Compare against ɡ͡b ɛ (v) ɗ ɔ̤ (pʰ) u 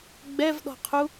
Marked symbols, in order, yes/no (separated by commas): yes, no